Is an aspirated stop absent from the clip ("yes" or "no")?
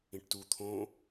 no